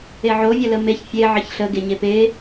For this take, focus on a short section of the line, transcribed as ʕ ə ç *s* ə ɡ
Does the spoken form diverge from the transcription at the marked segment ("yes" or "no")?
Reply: yes